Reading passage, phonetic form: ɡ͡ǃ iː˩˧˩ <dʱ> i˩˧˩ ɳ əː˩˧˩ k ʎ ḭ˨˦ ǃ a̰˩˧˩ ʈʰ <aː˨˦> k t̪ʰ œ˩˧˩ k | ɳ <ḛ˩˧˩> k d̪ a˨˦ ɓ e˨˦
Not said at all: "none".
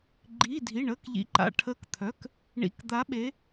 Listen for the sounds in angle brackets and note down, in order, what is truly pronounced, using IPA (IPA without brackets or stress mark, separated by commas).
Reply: dʱ, əː˨˦, ḭ˩˧˩